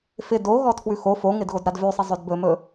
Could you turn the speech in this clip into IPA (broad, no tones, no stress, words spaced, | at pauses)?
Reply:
fɪ doɣɔ tʰwʉxo foŋɪd ɣodɾadvʉsˤɪ zˤɵdbɵmɵ